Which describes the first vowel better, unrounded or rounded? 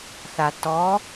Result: unrounded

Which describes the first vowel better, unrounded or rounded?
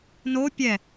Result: rounded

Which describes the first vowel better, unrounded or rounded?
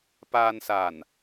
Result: unrounded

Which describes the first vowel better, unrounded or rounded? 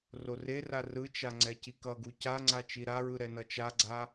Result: rounded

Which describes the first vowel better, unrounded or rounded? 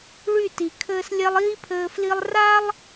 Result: rounded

